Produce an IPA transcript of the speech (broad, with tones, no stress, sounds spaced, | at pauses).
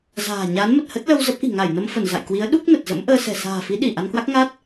z a̤ː˨˩ ɲ a˨˦ n m ə˨˩ t̚ h ə˦˥ t̚ l ə˧ w z ə˦˥ p̚ ʔ i̤˨˩ ŋ a˧˩ j n ə˧ m f ə˧˩ n z a̰˧˨ j k w i˨˦ ə̯ ɗ u˦˥ k̚ n ə˨˩ t̚ z ə̰˧˥ m ʔ əː˧ s ɛ̤˨˩ s a̤ː˨˩ f i˨˦ ɗ i˧˩ ʔ a˧ n k w a˦˥ k̚ ŋ a˦˥ t̚